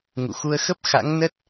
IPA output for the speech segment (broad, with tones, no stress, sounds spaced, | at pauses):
ŋ ṵ˧˨ x u˧ ə̯ x ə˦˥ p̚ x a̰˧˥ ŋ n ə˦˥ t̚